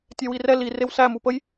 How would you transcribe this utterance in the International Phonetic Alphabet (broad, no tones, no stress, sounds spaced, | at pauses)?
tʲ ɛ w i r ɛ l i r e w s æ m u p ə j